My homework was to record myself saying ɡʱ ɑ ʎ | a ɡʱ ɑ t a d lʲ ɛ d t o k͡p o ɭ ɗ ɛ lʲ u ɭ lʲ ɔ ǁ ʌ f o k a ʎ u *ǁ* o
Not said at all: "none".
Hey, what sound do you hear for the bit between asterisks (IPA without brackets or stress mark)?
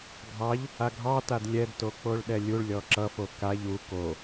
k